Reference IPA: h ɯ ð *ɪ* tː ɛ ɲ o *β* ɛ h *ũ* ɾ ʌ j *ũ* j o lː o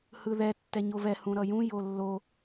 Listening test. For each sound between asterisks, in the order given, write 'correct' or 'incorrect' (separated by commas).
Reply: incorrect, correct, correct, correct